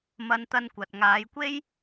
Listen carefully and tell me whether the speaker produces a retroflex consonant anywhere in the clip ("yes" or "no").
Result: no